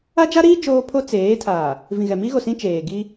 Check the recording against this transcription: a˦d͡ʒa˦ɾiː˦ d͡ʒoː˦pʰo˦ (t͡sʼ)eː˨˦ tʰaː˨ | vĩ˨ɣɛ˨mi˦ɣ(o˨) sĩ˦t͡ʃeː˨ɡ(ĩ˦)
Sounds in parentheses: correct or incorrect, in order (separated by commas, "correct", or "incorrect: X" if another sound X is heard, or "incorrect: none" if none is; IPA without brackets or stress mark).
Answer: incorrect: t͡s, correct, incorrect: i˦